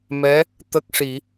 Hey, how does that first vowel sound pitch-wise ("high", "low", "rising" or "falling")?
rising